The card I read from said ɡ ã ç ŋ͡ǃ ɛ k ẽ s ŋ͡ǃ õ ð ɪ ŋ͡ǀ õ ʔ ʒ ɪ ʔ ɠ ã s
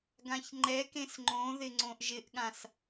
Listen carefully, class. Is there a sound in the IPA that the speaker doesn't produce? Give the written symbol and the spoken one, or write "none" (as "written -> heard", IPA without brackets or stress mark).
none